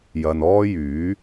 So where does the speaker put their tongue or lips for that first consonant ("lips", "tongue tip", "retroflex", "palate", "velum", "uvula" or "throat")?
palate